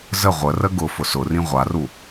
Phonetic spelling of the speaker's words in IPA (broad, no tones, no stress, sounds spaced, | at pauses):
z ə ʁʷ ə r ə ɡ ʊ f ʊ s ʊ r ĩ ʁʷ a r u